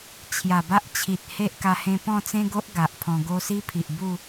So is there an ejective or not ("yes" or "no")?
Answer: no